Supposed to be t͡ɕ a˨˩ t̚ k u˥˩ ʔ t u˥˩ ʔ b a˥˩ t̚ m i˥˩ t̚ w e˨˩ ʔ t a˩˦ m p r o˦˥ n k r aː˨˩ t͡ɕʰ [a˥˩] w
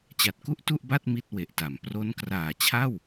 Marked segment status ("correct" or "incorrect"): correct